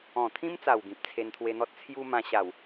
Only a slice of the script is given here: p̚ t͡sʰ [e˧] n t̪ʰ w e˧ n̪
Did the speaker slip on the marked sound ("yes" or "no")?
no